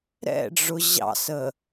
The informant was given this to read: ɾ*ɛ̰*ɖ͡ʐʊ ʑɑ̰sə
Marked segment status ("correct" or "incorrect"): correct